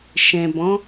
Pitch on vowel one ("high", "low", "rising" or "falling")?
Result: low